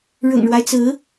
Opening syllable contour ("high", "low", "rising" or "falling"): low